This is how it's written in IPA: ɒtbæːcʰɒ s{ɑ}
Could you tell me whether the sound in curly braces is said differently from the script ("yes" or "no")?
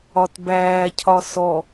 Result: yes